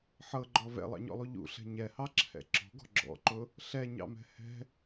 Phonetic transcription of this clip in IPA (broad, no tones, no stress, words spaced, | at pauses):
ħɤɡ͡ǃɔ vɛ̰lˠɑ̰ɲɔ̰lˠu ʎṵɬɛ̤ ɲɛhɑǁʰɛ̰ ǁɔ̤ɡɔ̤ ɡ͡ǁɔ̰ǃʊ | ɬɛɲɑ̰mɛ̤ hɛ̤